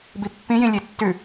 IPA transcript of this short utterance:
bipːĩjĩ lʲetːʉ

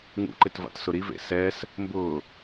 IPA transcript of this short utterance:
ŋṵǃɪtva̰tsʊ ɾivḛ sɛs | mbʊː

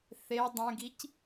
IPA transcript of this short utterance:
θe dˤẽɡic

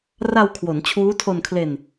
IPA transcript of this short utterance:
ra˧wkʰwo˩˦n t͡ɕʰuː˦˥tʰo˧nkʰle˧n

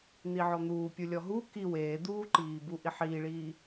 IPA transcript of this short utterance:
n̪iʕɔn̪uːpʲu lʲɔɦu ki weːd̪uːǃiːbu ʔiħiːɭiː

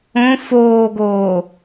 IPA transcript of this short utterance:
õ foːɡoː

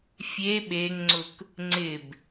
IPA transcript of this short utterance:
fʲe ɓeŋŋ͡ǀʊk | ŋ͡ǀɪb

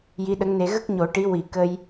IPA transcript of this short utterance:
ji˧˥ɗə˧˥ŋne˧ ɣə˦˥k̚ɲo˨˩˦ ʈi˧˥ wi˨˩˦ kə˧j

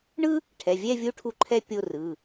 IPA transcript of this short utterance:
ɳɯ˥ | ʈʰɛ˩˧˩vʲɛ˥˧vʲu˧˥ ʈʰu˧˥ǃʰɛ˥˧ pʲo˥˧rɯ˩˧˩

